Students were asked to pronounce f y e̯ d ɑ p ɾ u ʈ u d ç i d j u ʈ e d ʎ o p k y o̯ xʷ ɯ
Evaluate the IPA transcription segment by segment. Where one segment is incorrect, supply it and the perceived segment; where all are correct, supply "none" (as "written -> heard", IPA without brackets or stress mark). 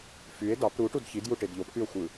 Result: none